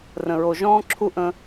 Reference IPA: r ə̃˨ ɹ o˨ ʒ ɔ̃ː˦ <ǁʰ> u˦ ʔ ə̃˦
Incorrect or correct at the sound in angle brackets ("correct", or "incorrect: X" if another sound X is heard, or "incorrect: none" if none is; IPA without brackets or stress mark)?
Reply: correct